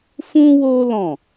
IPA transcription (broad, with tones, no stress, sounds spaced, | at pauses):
f ũ˦ w o˦ l ɔ̃˦˨